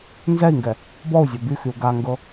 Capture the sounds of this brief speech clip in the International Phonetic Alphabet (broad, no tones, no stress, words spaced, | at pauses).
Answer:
nzɛi̯ŋɡɛ | bɔu̯zʲœ byxyu̯ ɡaŋɡɤ